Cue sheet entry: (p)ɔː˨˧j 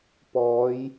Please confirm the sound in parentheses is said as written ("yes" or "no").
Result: yes